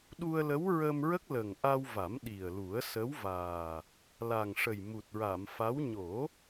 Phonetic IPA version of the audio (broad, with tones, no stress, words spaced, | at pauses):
ɗu˧ə̯lə˧˥w ɹə˧mɹə˦˥k̚ lə˨˩ŋʔa˧wva˨˩˦m ɗi˨˩ə̯ lu˨˩˦ə̯sə˧˥wvaː˨˩ | la˨˩ŋʂə˨˩jmu˨˩t̚ɹa˨˩˨m fa˧˥w ɲo˨˩˦